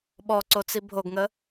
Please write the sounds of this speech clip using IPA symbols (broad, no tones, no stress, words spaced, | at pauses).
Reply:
ɓɔǀot͡si bʱoɡŋə